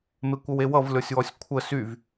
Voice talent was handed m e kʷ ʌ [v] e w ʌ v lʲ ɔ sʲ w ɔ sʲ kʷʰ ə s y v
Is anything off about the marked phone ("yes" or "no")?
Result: yes